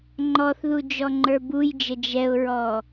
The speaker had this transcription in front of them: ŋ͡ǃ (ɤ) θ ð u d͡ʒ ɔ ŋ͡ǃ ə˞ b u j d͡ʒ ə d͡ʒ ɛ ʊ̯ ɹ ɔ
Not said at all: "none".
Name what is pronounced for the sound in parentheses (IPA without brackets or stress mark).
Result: ɔ